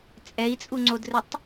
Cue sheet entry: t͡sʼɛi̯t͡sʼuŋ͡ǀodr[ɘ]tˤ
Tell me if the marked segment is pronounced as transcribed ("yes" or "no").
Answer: yes